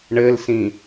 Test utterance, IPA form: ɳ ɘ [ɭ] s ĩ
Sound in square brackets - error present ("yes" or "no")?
yes